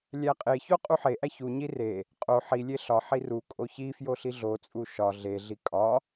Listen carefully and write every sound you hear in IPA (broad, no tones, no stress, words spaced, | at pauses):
lʲæqʼeço qʼuħeʔæ çuɲi re | qʼo ħilʲe ɬɒħi ru kʼoçifjo ɬiɮot͡sʼu ʃɒ ɮeɮi kʼɒ